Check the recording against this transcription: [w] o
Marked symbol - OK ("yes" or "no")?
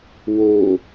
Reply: yes